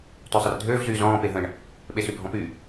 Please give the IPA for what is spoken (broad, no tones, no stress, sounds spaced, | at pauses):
t ø sˤ ə r dʱ øː v z yː z ɔ̃ː p e ɦ ə̃ ɳ | ɓ e s y bʱ ɔ̃ p y